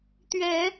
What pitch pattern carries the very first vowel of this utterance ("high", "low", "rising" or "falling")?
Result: rising